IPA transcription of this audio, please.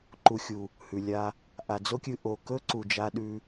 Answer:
ǃ u˨ xʲ u˨ | h ʉ˨ lʲ a˧ | ʔ a˨ d͡z o˦ kʲ ɨ˧ ʔ o˨ k ɵ˦ ǀ u˨ d͡ʒ a˧ ɗ ʉ˧

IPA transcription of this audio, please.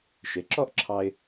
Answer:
ʃ e˩˥ ǁ ɔ˥ ʔ ǁʰ ɑ˧ ɪ̯

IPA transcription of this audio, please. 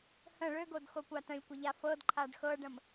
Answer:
h ə̃ ɭ ø ɡ o d x o kʷ a t ə̃ lʲ kʷ ə ʎ a f ɤ d ǃʰ a ɖ x ɤ ɖ ə̃ m

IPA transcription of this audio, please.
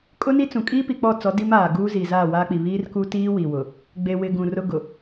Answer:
kʼ ʊ˦ n i˦ t͡s ũ˨ kʼ iː˦ p i˨ k͡p ɔ˦˨ t͡s ɔ˨˦ d i˦ m aː˨ ɡ uː˦ z i˨ z aː˦˨ w aː˦ k͡p i˨ β iː˦ r k u˦ t iː˦ w i˨ w ʊ˨ | ɡ͡b e˨ w ɪ˨ ɡ ũ˨ r ʊ˦ ɡ ʊ˨

